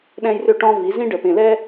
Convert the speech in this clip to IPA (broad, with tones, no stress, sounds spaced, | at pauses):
ɗ ɛ̃˦ j r ʏ˦ ʈ ɔ̃˦ v i˨˦ z ĩ˦ ɖ ə˨ p ẽ˨ l ɛ˦